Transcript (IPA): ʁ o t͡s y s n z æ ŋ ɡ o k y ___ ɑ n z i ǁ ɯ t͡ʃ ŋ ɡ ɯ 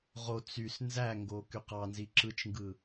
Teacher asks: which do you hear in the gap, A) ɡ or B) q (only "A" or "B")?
B